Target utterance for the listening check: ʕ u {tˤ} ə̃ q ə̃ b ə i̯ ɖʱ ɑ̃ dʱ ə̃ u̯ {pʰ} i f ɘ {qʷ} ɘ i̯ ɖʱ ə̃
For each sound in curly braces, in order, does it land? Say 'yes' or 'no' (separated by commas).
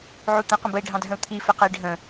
no, no, no